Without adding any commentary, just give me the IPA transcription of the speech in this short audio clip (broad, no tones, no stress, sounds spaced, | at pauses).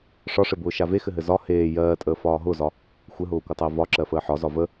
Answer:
ʂ ɒ ʂ ɘ b ʊː ʃ a v e x ɘ ɦ ɘ z ɒ h eː j ɜː tʼ əː f ɒː ɦ ʊ z ɒ | xʷ ɘ ɦ ʊː kʷ ɘ tˤ əː v ɒ ǁ ɜ f əː ħ ɒ z ɒ v ə